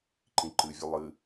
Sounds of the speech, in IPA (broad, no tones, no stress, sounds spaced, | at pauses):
ǃ ĩ ǃ ɨ vʲ ɘ lˠ ɨ